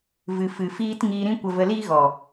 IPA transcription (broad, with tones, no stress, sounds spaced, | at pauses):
v ɨ˨ f ɨ˨ f iː˦ t ŋ iː˧ ɾ ĩ˦ kʷ ə˧ v ə˧ l iː˦ ɣ ɔ˨